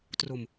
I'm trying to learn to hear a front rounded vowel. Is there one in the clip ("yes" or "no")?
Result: no